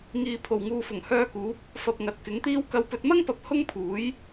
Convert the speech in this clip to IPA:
ŋ iː˨ pʰ o˨˩ w ŋ uː˨ f ʊ˨˩ ŋ h œː˧ k uː˨˥ p̚ | f ɐ˨ p̚ ŋ ɐ˨ t̚ k ɪ˨˥ ŋ t̪ iː˥ w k ɐ˨˧ w p ɵ˨ t̚ m ɐ˥ ŋ p ɐ˨˥ p̚ h ʊ˥ ŋ pʰ uː˨˥ j

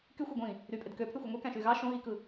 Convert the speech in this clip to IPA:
k y xʷ ɑ ɡʷ ĩ | ɾ y pʼ e d k ø pʰ y xʷ ɯ ŋʷ e k æ̃ ʃ y ɣ ɑ ʃ õ ɣ i k ɯ

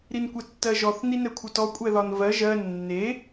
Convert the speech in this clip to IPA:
ɾ i n kʷ ɛ tː ɜ ʒ ɔ θ n i n ɛ kʷʰ ɜ t ɔ kʷʼ ɛ ð ɒ n v ɜ ʒ ɜ nː e

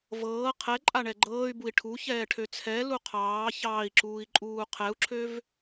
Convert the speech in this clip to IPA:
v ɤː qʰ ɛ ǃʼ a ɳ ɛ ɡ͡ǃ ɤː y̯ b u i̯ ʈʰ u ç ɛː ʈʰ ø t͡sʰ ɛ l u qʰ ɑː ç ɑː i̯ ǁ uː i̯ ǃʼ uː qʰ ɛ u̯ ǁʰ ø v

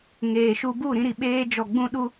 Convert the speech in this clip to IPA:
ŋ eː˨ ʃ u˧ b u˦˨ ɾ ĩ˧ ɾ i˨ ɓ eː˧ d͡ʒ ɔ˨ ɡ͡b ũ˧ ɗ u˧

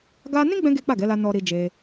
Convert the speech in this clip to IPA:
ɡ a˧ n ĩ˦ ɡ͡b ɛ̃˧ ɡ e˦ k͡p a˦˨ ɡ ɛ˨˦ l a˧ n ɔ˨ ɾ i˨ d͡ʒ e˧

